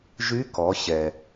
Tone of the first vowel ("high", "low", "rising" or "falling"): rising